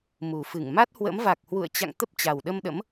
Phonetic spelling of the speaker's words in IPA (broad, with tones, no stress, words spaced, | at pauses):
mu˨˩fɨ˧˩ŋ ma˦˥t̚hwə̰˧˥mva˨˩k̚hwṵ˧˨ə̯ t͡ɕa̰˧˨ŋ t̪ə˦˥p̚t͡ɕa˨˩w ɗə˧mɗə̰˧˥m